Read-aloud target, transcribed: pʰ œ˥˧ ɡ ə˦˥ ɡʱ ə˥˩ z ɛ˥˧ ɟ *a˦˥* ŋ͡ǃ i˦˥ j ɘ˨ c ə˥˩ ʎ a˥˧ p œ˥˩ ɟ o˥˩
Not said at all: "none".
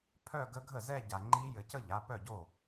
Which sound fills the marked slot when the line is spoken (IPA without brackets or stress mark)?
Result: a˨